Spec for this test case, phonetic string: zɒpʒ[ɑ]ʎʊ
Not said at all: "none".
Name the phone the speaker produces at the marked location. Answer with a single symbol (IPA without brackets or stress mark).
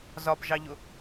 ɑ